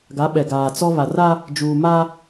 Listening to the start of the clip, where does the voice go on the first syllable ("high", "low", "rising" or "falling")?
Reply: rising